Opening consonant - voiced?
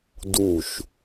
yes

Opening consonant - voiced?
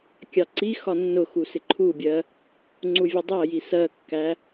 no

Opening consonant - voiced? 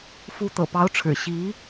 no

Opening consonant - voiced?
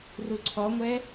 yes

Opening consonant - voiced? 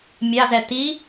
yes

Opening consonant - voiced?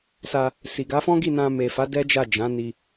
no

